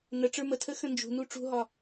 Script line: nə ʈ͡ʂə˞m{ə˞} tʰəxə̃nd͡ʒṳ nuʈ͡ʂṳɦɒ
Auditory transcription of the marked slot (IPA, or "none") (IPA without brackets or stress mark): ə